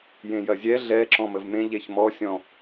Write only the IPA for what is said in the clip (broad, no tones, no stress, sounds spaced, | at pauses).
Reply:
j ẽ j ɐ zʲ ɛ ɮ ɛ ǁ ɔ̃ m ə v m ẽ ʎ e ç m ɔ sʲ ɔ̃